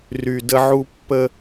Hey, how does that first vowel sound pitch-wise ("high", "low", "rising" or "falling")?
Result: low